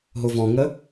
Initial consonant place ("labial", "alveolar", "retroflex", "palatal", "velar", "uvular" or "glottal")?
glottal